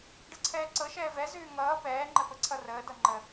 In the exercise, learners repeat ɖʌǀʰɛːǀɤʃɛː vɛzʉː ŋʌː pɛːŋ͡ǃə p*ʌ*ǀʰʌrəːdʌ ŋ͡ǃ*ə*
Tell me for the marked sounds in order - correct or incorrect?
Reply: incorrect, correct

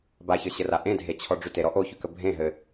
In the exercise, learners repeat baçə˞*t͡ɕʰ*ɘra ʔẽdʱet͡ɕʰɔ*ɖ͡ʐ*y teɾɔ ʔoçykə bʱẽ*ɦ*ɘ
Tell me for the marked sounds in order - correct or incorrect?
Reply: incorrect, correct, correct

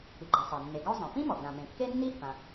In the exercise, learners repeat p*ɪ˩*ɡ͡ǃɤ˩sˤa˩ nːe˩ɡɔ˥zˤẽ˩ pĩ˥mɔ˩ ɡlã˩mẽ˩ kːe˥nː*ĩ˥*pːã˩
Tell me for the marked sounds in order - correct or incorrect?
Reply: incorrect, incorrect

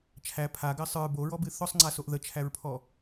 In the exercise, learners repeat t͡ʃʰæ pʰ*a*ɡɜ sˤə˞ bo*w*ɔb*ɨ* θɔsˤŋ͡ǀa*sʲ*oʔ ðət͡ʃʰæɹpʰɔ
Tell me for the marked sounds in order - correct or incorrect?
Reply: correct, incorrect, correct, incorrect

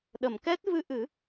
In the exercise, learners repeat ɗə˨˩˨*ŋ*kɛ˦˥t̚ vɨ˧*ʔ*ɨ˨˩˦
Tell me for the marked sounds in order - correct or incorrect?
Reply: incorrect, correct

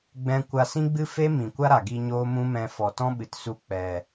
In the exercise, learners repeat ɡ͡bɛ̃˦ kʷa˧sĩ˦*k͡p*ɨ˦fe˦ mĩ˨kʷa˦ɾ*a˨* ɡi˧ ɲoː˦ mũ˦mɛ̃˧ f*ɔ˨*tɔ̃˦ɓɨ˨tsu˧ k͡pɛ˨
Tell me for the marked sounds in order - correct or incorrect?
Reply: incorrect, correct, correct

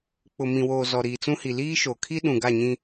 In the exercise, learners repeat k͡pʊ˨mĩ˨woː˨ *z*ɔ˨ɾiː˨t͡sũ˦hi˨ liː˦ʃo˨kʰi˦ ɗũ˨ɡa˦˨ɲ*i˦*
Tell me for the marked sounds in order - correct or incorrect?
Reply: correct, incorrect

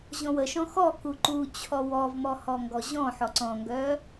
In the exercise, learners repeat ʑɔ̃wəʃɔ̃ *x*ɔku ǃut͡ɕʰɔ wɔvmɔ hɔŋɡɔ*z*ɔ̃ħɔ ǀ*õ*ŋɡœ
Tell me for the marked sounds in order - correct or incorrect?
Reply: correct, incorrect, incorrect

